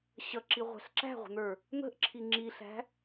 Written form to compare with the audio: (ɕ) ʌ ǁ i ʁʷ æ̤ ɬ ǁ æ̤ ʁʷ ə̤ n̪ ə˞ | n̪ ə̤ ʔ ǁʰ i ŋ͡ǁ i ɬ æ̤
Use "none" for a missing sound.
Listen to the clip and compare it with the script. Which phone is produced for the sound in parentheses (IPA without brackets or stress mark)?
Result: ɕ